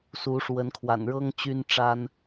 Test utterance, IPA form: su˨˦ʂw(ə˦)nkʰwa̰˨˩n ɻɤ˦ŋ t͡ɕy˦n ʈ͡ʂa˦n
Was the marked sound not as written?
yes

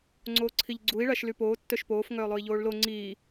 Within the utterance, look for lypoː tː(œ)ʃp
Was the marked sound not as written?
no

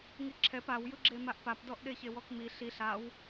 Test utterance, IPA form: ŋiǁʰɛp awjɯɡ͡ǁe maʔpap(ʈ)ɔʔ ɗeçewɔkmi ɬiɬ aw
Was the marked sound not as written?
yes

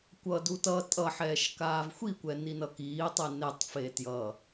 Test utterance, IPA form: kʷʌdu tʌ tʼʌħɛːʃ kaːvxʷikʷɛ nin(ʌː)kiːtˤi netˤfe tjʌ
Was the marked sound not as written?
yes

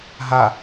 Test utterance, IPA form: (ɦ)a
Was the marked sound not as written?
no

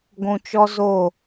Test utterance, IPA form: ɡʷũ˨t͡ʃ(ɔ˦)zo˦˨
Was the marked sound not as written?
no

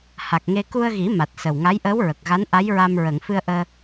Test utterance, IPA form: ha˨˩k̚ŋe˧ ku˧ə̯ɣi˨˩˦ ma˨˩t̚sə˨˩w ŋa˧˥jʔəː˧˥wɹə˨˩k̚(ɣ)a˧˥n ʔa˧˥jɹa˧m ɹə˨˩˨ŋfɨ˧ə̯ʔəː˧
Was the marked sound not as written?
no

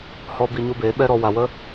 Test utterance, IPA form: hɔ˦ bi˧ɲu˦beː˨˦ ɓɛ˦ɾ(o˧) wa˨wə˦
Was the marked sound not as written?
yes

